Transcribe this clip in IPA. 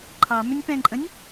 ǃʰ ɑ m ʏ nʲ p ɛ̃ ǃʼ ə̃ nʲ

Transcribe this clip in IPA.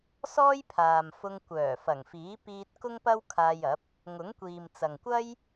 s ɔː˥ j pʰ aː˨ m f ʊ˧ ŋ kʷ œː˨˩ f ɐ˨˩ ŋ f iː˨˥ p iː˧ t̚ k ʊ˥ ŋ p ɐ˥ w kʰ aː˧ j ɐ˨˥ p̚ | ŋ ʊ˨˥ ŋ kʷ iː˨ m t͡s ɐ˨ ŋ kʷ ɐ˥ j

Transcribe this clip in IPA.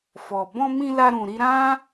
f ɔ˨ b ɔ̃˧ m ĩ˧ l a˧ ɾ ũ˨ ɾ i˧ ɾ ã˦

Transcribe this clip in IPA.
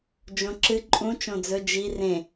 d͡ʒ õ ǁ ɨ ǃʼ ũ t͡ʃ õ d͡z ɵ d͡ʒ i r ẽ

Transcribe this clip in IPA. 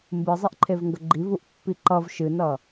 m b ɨ zˤ e ʔ ǃʰ e v ŋ ɡ ə ɡ͡ǃ i v u ʔ pː i ǃ ʌ v ʃ ɨ n ʌ

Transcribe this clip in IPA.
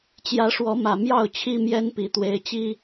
t͡ɕ j ä˨˦ ʂ w ɔ˨˦ m ä˨˩ m j ɑ˥˨ ʊ̯ t͡ɕʰ i˦ m j ɛ˦ n p i˨˩ t̪ w e˨˦ ɪ̯ t͡ɕ i˦

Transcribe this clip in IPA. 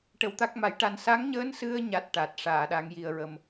ʈ ə˨˩˦ w t̪ a˦˥ k̚ m a˨˩˦ j ʈ a˧ n s a˧˥ ŋ ɲ əː˧˥ n s ɨ˧ ə̯ ɲ a˦˥ t̚ ʈ a˨˩ t̚ ʂ aː˨˩˨ ɗ a˨˩˦ ŋ j i˨˩ ə̯ ɹ ə˨˩ m

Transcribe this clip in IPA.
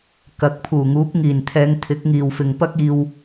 k ɐ˨˥ k̚ pʰ uː˨˩ ŋ uː˨˥ p̚ ŋ iː˨˩ n t̪ʰ ɛː˨˧ ŋ t̪ʰ ɪ˨˥ k̚ ŋ iː˨ w f ɪ˨ ŋ p ɐ˥ k̚ iː˧ w

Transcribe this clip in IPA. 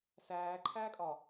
s æː ǃʰ æː kʼ ɒ

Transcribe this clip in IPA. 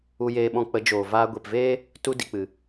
u˧ j eː˧ ɓ ɔ̃˧ k͡p ə˨˦ d͡ʒ oː˨ v aː˧ ɡʷ e˨ p v eː˦ | t u˧ d i˨ k͡p ɨ˨

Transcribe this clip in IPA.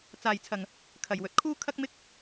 t͡s aː˧ j t͡sʰ ɐ˧ ŋ | kʰ ɐ˨ j w ɵ˨ t̚ kʰ uː˥ kʰ ɐ˥ k̚ m ɪ˥ k̚

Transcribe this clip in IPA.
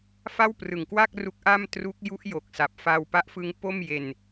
f a˥˩ w p r ɯ˨˩ ŋ k w a˥˩ k̚ r u˦˥ k̚ ʔ a˥˩ m t r u˦˥ k̚ j u˦˥ ʔ j o˨˩ k̚ s a˨˩ p̚ f a˧ w p a˦˥ ʔ f ɯ˦˥ ŋ p o˥˩ m j e˧ n

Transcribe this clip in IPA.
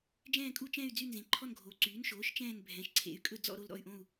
d͡ʒ ɛ̃ː˥˧ kʼ u˥˧ t͡ʃ ɛ̃˥˧ y̯ d͡z y˥˧ n z ẽ˩˥ ǃʰ ɔ˥˧ n ɡʱ oː˩˥ ǀ yː˩˥ n ʃ oː˩˥ ʃ t͡ʃ ɛ̃ː˥˧ n bʱ ɛ̃˩˥ ʃ ǀʰ ḛ˩˥ y̯ kʼ ɵ˥˧ d͡z ɔ̰˥˧ ɾ o˥˧ l ɾ ɔ̰˥˧ y̯ ʔ õ˥˧ u̯

